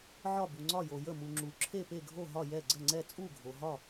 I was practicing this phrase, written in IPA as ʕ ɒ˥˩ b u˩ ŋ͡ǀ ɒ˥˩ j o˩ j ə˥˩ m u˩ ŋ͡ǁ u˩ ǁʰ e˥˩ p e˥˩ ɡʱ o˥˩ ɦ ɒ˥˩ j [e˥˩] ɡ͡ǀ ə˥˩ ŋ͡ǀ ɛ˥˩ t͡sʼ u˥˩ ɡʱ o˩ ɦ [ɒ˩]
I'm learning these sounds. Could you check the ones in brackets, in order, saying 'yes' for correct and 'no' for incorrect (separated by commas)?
no, no